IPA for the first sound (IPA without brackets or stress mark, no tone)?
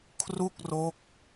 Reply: kʰ